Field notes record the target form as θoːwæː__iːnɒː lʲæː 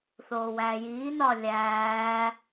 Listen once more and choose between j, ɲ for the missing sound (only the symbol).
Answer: j